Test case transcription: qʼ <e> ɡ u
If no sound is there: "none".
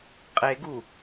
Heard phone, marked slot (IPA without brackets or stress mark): e